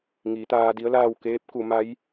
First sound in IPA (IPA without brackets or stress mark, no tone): ŋ